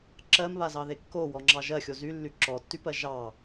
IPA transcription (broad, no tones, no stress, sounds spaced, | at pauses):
ǁ ɜ m β a z ɑ ð e kː o w ɔ ŋ͡ǁ ɑ ʒ ɜ xʲ o z y lː y ǁ ɔ tː y p ɜ ʒ ɑ